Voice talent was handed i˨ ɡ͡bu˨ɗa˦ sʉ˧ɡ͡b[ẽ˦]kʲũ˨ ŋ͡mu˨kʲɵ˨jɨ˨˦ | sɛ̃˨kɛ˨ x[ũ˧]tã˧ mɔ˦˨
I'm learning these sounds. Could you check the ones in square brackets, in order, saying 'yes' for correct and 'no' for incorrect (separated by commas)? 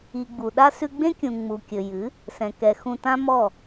yes, no